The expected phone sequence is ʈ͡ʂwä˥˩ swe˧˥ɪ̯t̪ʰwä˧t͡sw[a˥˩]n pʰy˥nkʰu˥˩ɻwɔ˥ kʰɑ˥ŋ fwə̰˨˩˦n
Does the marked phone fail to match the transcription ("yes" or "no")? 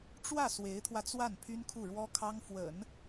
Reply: no